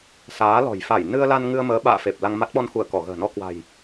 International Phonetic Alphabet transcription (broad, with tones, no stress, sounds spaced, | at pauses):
s aː˨˦ l ɔ̤˨˩ j f a˧˩ j n ɨ˧ ə̯ l a˧ n ŋ ɨ˧ ə̯ m əː˨˦ ɓ a̰ː˧˨ f e˨˩ p̚ l a˧ ŋ m a˦˥ t̚ ɓ ɔ˧ n x u˧˩ ə̯ k ɔ˧˩ ɣ ə̤ː˨˩ n ɔ˧ k w a̤˨˩ j